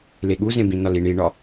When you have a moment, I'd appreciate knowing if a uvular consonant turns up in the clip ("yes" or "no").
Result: no